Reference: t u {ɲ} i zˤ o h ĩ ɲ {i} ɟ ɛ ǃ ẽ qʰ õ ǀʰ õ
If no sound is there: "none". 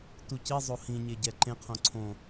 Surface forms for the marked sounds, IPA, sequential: c, e

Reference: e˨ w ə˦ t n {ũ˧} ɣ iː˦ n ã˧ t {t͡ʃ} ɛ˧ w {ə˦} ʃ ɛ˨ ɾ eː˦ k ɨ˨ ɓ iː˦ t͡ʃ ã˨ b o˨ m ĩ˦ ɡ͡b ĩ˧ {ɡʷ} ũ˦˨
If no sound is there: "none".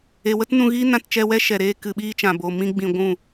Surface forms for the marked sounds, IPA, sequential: ũ˧, t͡ʃ, ɛ˦, ɡʷ

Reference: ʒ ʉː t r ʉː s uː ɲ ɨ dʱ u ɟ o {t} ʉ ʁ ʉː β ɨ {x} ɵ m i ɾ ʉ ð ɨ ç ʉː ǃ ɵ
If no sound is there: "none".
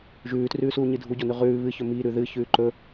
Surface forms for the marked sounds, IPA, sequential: n, ç

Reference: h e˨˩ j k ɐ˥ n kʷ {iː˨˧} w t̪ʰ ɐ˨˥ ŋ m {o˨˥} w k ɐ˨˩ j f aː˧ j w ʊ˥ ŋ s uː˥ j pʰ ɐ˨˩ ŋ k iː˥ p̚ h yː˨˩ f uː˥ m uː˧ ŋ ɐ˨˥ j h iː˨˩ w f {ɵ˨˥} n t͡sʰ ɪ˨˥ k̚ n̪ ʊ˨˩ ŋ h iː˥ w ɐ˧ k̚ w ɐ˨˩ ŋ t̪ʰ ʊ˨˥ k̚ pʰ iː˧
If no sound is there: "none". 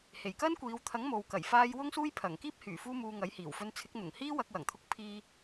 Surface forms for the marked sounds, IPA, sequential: iː˨˧, o˨, ɵ˧

